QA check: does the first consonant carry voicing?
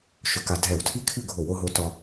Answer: no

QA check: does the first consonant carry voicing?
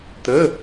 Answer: no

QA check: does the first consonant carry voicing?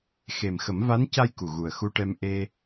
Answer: no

